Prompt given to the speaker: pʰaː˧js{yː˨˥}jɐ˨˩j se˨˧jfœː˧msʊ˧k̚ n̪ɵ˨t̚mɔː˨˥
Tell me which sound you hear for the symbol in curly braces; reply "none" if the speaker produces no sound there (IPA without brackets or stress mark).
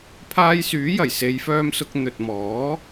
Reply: yː˨˥